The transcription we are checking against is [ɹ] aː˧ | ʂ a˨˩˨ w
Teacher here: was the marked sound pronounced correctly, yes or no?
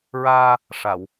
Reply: yes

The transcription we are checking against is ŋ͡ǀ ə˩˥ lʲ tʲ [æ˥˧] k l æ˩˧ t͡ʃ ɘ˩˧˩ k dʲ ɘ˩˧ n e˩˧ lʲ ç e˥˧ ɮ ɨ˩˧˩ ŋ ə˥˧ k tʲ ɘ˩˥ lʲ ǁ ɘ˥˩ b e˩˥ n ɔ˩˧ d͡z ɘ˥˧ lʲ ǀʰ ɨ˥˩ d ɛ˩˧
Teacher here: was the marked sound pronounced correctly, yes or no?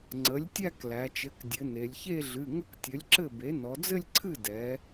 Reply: yes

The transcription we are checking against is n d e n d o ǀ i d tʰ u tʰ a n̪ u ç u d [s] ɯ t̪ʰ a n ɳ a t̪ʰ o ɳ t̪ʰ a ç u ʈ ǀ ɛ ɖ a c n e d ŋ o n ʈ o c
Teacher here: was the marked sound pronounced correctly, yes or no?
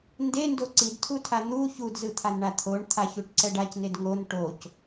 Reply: no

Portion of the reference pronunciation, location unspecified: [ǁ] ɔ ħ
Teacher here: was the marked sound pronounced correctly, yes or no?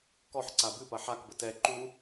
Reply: no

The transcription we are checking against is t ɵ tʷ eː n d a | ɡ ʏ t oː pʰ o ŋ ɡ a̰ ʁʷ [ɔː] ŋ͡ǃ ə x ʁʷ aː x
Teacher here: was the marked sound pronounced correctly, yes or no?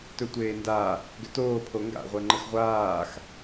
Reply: no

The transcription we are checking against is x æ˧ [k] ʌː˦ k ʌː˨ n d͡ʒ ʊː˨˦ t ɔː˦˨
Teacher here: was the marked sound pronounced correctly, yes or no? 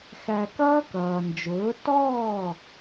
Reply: yes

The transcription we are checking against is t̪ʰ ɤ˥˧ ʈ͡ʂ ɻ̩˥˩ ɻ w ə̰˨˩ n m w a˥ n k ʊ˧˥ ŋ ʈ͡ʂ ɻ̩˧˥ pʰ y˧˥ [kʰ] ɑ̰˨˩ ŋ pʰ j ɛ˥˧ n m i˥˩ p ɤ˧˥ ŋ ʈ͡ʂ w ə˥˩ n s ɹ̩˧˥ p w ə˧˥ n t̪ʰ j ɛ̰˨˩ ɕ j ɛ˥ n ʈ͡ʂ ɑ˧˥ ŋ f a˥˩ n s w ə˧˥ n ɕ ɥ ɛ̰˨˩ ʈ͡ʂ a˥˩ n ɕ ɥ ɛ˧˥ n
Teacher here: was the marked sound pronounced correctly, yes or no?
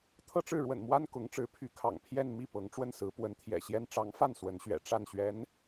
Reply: yes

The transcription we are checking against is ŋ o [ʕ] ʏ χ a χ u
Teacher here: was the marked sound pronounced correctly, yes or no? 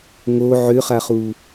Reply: yes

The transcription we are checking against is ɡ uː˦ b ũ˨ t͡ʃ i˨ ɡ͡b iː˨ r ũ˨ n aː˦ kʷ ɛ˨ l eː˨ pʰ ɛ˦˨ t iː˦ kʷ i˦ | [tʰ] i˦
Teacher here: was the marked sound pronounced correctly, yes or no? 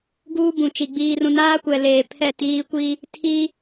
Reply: yes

